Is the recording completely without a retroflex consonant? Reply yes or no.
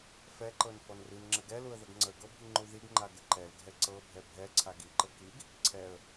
yes